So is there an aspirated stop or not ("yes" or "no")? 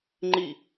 no